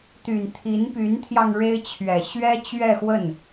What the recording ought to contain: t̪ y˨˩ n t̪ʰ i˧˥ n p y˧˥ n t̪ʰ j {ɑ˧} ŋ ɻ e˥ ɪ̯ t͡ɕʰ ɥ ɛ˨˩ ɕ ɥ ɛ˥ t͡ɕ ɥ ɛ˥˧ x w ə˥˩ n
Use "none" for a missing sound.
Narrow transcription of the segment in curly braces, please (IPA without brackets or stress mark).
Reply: ɑ˧